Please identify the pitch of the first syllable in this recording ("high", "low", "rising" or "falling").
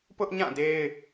high